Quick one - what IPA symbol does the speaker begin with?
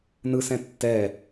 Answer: n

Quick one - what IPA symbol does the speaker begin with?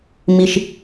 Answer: m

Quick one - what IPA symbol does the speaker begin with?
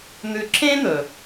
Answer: n̪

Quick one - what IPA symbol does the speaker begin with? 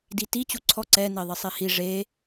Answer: d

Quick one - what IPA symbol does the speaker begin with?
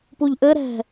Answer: p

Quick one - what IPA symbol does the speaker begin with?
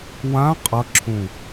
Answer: w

